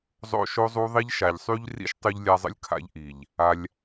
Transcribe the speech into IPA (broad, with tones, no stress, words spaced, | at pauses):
zˤo̰˦ʃo˦zˤu˦ðˤi˦ʎ ʃa˨ʎsˤy˧ʎrḭ˧ʃ tˤy˧ʎlʲa˧zˤə̰˦lʲ kʰa̰˧ʎʔi˨ʎ | a˧lʲ